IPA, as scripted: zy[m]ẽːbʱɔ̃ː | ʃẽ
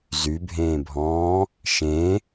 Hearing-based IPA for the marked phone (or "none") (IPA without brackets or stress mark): bʱ